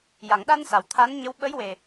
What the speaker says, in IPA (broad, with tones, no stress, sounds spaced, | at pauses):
j a˨˩˨ ŋ ɗ a˧ n s a˨˩˨ w t̪ʰ a˧˥ n ɲ ə˧˥ w ɓ ə˧˥ j w e˨˩